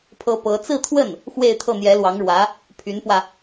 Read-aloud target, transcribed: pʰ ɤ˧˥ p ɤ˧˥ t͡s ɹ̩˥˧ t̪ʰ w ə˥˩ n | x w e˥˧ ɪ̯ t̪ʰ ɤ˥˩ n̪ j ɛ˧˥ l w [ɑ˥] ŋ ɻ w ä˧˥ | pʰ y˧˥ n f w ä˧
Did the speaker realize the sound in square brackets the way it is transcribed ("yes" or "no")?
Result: no